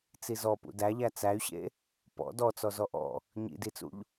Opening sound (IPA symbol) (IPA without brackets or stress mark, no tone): t͡s